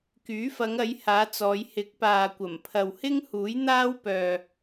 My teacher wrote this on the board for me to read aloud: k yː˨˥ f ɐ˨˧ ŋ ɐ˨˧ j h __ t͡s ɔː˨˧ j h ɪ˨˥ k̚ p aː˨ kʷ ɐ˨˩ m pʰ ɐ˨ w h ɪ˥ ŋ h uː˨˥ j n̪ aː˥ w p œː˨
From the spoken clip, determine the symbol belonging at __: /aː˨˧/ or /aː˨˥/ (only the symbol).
aː˨˧